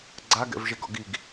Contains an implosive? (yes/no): no